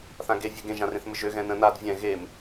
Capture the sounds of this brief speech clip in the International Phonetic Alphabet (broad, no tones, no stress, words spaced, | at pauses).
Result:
θãɡe vʲɛɡẽ ʒãrẽθmɘʒø ɣɛ̃nə̃ nad vʲɛ̃ ɣem